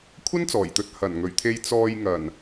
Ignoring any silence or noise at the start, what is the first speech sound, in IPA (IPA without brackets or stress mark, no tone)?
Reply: kʷʰ